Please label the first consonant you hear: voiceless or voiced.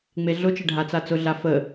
voiced